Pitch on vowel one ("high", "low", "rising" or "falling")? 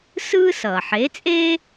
high